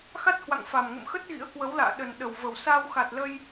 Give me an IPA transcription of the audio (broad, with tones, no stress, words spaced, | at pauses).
xa˦˥t̚hwa̰˧˨ŋfa˨˩mŋə̰˧˨m xə˦˥t̚ ɣḭ˧˥ə̯kwə˨˦wla̰ː˧˨ɗə˨˩n ɗə˨˩wvə˨˩w sa˧wxa˨˩t̚lə˧j